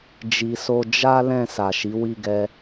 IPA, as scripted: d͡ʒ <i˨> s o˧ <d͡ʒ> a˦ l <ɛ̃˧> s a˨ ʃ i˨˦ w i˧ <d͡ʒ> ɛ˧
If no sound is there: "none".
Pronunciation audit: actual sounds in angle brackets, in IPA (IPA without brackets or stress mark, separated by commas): i˨, d͡ʒ, ɛ̃˦˨, ɡ